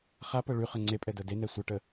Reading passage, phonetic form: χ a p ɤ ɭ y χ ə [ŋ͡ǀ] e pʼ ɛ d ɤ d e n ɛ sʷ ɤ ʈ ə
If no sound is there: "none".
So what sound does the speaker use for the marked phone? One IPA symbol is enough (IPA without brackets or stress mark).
ŋ͡ǀ